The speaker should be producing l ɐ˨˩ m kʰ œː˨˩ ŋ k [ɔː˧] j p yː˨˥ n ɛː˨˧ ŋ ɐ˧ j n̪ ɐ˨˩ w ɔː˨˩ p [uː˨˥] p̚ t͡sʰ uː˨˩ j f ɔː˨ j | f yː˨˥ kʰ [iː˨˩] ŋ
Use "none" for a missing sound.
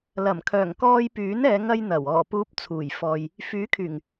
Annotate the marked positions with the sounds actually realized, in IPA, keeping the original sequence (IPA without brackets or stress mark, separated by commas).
ɔː˧, uː˨˥, yː˨˩